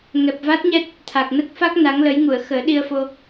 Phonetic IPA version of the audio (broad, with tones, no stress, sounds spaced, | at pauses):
ŋ ɛ˨˩ p̚ v a˦˥ t̚ ɲ ɛ˦˥ t̚ | t̪ʰ a˨˩ k̚ n ə˦˥ k̚ f a˦˥ k̚ n a˧˥ ŋ l ə˧˥ j ŋ u˨˩˨ ə̯ x əː˨˩˦ ɗ i˧ ə̯ f o˧